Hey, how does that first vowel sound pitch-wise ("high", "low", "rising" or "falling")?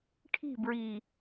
falling